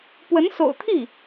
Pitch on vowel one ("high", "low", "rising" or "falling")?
rising